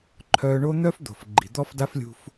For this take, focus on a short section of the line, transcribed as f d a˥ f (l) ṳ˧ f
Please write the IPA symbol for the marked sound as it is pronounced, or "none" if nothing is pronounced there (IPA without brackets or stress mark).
lʲ